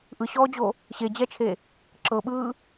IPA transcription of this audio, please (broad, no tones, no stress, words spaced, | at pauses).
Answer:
ʔɯɕɔːd͡ʑo | ɕed͡ʑɛt͡ʃʰe | ǁɤɓɯː